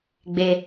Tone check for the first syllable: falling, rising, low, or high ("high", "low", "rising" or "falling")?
low